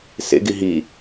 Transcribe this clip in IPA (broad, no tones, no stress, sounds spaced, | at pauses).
s ḛ ɡ i ɦ i